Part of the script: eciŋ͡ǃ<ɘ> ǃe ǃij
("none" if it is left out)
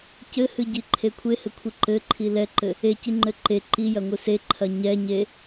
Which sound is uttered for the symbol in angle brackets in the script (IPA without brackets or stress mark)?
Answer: ɘ